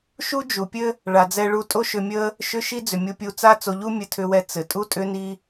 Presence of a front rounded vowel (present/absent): present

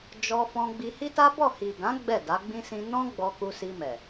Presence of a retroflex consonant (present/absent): absent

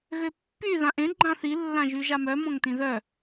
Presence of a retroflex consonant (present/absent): absent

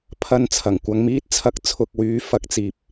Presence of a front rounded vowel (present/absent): present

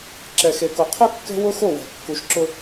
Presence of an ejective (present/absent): absent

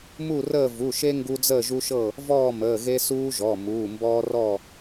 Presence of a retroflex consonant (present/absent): absent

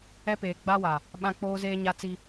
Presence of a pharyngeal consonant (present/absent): absent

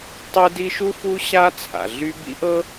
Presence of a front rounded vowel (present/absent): present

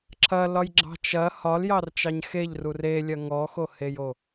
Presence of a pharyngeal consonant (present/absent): absent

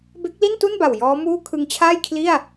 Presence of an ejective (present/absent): absent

